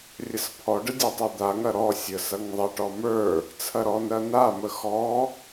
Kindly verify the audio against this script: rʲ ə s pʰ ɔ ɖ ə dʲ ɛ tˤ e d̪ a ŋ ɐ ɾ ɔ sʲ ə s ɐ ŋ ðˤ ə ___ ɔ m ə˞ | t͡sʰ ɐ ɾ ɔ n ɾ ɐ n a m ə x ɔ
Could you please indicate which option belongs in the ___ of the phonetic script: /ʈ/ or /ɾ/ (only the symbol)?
ʈ